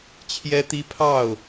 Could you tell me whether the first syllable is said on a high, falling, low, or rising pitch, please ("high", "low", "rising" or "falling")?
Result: high